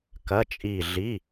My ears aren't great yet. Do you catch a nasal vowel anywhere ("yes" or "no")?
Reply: no